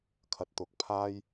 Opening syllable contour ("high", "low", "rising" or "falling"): low